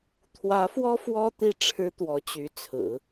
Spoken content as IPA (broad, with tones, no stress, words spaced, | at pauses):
t̪ʰwä˧˥fwɔ˥ fwɔ˥ t̪i˥˩ʈ͡ʂʰɻ̩˥t̪wɔ˧˥ t͡ɕy˧˥t͡sʰɹ̩˨˩˦